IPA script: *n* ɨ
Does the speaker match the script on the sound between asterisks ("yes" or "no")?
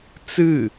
no